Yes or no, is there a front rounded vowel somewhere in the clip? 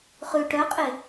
yes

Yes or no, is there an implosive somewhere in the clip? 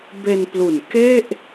no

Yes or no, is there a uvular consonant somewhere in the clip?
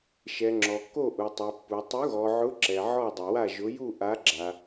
no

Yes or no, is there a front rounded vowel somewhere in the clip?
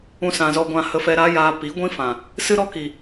no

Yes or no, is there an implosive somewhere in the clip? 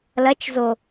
no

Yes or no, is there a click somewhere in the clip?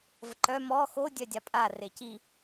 yes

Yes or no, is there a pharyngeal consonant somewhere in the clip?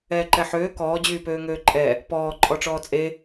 yes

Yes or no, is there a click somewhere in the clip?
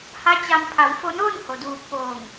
no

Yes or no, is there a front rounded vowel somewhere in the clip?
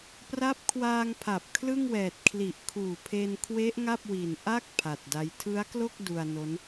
no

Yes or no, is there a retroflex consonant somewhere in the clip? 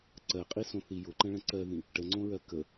yes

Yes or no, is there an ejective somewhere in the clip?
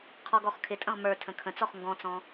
yes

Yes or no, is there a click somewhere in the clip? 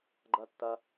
yes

